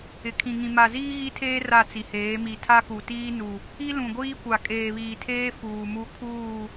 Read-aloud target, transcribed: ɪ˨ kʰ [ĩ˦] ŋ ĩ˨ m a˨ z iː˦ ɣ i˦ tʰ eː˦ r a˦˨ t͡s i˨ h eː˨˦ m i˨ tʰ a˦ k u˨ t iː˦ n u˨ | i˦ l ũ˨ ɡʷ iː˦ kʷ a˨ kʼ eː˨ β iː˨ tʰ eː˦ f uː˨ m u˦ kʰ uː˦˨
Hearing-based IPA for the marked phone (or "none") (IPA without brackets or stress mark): ĩ˨